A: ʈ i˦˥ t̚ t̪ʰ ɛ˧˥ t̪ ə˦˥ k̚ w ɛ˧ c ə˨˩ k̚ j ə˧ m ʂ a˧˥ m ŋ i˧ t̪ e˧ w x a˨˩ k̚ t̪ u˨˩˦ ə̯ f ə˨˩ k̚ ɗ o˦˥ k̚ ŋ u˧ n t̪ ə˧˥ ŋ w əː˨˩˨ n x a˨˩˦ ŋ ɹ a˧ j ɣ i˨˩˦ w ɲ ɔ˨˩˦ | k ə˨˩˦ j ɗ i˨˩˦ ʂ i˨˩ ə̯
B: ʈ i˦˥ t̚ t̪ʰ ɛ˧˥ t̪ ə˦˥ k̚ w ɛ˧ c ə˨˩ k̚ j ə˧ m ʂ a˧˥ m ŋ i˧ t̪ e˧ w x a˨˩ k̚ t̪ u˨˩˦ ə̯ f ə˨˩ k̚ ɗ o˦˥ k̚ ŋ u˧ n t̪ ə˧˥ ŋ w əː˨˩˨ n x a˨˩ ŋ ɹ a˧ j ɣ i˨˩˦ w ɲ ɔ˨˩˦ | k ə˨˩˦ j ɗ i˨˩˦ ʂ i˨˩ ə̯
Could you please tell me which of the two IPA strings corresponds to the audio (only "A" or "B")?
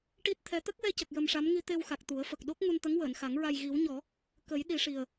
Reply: A